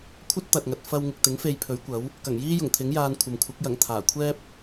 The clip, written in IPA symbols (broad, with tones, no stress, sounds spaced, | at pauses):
kʷʰ ɐ˥ t̚ t̪ ɐ˨ t̚ ŋ ɐ˨ t̚ f ɐ˧ w ŋ ɪ˨ k̚ t̪ ɪ˨˥ ŋ f e˧ j pʰ ɵ˨˥ ɥ kʷ ɐ˨˥ w | k ɐ˨˩ ŋ j iː˥ j ʊ˨˩ ŋ t̪ʰ ɪ˨˥ ŋ j aː˧ n kʷʰ ɐ˨ m kʷʰ ɐ˨˥ k̚ j ɐ˨˩ ŋ t̪ʰ aː˨˩ kʷʰ ɛː˥ p̚